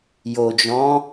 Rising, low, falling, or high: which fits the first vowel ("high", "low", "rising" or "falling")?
low